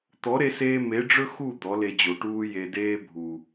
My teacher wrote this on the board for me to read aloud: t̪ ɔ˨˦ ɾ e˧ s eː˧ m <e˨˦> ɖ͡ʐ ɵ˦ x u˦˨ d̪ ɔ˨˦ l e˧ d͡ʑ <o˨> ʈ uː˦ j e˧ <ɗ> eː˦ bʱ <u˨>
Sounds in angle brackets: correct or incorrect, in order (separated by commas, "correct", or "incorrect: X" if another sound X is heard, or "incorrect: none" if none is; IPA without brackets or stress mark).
correct, correct, incorrect: d, correct